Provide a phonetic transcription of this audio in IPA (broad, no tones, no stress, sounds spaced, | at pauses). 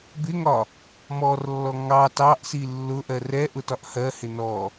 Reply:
b ɪ ŋ ɒ | m ɔ r lː ɔ ŋ ɑ t ɑ ʔ s i lː ʊ ʔ ɜ r ɛ ʔ ʊ t ɒ ʔ h ɜ h ɪ n ɔ